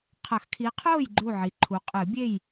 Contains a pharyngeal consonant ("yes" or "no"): yes